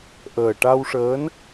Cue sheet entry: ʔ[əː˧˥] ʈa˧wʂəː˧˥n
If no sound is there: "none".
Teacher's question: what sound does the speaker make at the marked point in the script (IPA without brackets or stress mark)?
əː˨˩